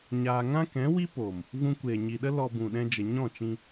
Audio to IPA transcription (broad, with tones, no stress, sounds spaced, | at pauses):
ɲ aː˧ ŋ ã˦ k ɛ̃˨˦ w i˦ p oː˨ m | v ũ˧ kʷ eː˨ ɲ i˨ ɗ ə˦ l ɔ˧ b ũ˨ ɗ ɛ̃˧ d͡ʒ ə˨ ɲ ɔ̃˦˨ t͡ʃ ĩ˧